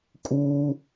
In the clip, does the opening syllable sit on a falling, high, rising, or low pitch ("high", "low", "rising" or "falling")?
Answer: high